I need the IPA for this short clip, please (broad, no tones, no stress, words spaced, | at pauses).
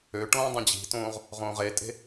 øʈõː dˤɛ̃d͡ʑi̤tõːʁ | ʁõːʁetʼe̤